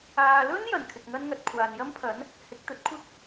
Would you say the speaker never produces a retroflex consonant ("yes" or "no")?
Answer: yes